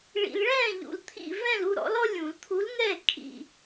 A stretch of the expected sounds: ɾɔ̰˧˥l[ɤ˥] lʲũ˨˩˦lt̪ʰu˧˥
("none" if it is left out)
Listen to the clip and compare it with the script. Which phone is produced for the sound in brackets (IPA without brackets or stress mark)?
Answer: ɔ˥